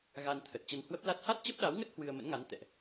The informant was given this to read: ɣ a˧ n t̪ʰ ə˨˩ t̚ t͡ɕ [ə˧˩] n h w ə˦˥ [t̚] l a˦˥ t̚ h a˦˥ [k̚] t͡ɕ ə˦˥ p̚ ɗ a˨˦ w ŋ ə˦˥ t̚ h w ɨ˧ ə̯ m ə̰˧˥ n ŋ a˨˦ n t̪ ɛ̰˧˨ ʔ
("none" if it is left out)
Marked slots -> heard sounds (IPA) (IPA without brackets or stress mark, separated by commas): ə˧, p̚, t̚